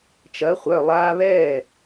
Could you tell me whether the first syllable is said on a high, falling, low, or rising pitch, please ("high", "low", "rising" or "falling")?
rising